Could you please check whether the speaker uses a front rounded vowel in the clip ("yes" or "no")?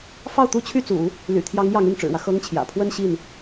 yes